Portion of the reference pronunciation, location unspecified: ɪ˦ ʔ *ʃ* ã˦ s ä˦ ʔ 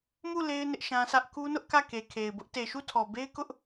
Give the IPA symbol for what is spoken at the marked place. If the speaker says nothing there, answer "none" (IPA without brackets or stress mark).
ʃ